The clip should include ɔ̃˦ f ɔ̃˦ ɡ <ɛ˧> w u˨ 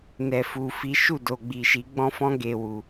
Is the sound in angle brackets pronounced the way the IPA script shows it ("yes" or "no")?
no